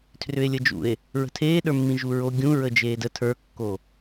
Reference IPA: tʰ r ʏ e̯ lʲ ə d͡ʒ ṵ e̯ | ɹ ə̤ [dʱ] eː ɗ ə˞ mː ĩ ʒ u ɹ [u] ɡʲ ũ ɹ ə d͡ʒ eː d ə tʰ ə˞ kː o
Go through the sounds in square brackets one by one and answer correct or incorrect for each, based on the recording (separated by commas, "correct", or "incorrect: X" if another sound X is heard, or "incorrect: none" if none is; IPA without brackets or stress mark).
incorrect: tʰ, incorrect: o